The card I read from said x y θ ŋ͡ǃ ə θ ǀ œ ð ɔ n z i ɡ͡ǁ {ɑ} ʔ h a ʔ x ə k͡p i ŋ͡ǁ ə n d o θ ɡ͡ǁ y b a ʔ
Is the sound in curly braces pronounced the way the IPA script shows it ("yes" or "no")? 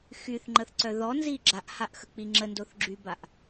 no